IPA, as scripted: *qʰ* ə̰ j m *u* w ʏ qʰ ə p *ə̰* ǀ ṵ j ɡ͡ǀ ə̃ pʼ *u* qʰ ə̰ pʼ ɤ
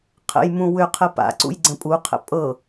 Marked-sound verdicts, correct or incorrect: correct, incorrect: ũ, incorrect: a̰, correct

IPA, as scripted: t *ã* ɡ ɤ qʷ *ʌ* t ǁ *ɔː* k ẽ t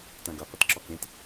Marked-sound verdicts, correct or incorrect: correct, correct, incorrect: ɔ

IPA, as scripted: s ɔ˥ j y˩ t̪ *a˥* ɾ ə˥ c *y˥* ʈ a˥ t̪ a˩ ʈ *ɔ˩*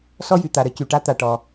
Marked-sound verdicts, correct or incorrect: incorrect: a˩, incorrect: y˩, correct

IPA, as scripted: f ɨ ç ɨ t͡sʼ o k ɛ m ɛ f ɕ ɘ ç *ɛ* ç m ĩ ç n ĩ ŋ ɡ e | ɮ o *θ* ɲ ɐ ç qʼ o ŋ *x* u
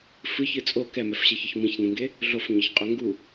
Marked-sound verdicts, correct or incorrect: incorrect: ɘ, incorrect: f, incorrect: ɡ

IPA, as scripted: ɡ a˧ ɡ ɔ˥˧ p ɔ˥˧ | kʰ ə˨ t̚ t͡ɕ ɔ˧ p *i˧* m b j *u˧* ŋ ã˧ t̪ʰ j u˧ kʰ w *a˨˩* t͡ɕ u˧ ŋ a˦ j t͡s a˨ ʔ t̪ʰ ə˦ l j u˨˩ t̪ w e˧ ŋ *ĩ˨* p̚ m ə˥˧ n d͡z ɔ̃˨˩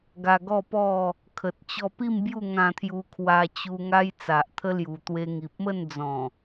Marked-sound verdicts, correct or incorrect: incorrect: i˥˧, incorrect: u˥˧, incorrect: a˧, incorrect: i˨

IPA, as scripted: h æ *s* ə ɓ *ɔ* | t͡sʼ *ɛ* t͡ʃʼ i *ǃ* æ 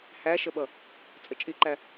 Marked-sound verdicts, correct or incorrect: incorrect: ʃ, incorrect: ʌ, incorrect: ə, correct

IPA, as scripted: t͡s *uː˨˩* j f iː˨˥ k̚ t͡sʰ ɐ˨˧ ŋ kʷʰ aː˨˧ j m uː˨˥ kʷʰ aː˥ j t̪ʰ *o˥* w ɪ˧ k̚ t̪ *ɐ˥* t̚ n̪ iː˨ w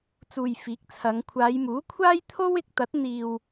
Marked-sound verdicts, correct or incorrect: incorrect: uː˨, correct, incorrect: ɐ˨˥

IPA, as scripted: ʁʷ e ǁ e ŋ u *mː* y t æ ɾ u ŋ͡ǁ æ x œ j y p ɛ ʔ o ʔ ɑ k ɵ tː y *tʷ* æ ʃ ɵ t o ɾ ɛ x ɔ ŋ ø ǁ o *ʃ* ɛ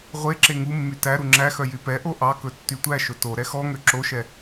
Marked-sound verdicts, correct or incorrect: correct, correct, correct

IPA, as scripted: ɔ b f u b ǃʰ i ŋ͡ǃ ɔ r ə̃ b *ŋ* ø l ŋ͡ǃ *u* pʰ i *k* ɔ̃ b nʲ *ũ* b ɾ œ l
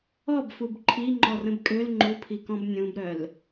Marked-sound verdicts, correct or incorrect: incorrect: kʼ, correct, correct, correct

